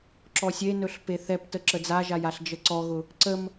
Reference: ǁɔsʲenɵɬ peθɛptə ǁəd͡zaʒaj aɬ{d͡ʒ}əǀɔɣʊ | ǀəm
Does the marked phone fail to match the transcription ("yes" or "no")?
no